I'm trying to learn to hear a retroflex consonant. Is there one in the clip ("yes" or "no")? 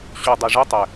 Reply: yes